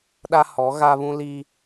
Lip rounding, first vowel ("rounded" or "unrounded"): unrounded